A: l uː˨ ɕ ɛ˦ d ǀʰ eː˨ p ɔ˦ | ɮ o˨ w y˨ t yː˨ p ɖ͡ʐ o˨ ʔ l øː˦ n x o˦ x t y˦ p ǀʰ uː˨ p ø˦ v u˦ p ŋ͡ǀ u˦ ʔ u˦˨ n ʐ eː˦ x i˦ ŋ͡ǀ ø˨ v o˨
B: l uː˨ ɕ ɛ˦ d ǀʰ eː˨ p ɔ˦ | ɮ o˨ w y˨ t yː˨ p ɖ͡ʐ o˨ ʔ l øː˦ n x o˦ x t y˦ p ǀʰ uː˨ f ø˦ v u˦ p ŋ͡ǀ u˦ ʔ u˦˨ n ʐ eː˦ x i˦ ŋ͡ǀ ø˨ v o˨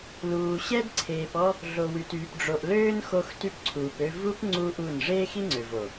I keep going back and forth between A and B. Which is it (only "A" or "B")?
A